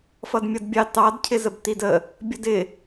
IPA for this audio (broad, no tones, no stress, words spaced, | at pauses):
fʌdmʲʌdbʲɑ tɑd cʰɪzəbtidə | bʲʌdɪ